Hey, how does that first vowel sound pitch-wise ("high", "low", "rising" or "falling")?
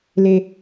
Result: high